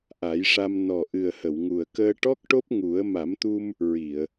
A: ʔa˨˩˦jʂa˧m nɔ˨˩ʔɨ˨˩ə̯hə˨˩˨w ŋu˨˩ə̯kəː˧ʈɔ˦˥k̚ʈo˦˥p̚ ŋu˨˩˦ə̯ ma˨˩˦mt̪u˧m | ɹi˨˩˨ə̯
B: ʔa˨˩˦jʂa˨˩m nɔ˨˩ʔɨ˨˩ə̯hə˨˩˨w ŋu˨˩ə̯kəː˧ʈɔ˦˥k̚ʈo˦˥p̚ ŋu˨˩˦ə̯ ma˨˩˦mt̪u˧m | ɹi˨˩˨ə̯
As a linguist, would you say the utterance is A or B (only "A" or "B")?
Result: A